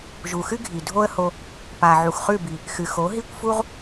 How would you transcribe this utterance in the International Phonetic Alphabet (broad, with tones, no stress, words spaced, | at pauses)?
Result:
ʒu˨xɨ˦ɡʱi˨ dʱo˦ə̯ho˧ | pa˨ ʕu˨xχʉ˦˨bi˨ | xɨ˨xo˨˦ ɦi˦˨kʷfu˦ʁ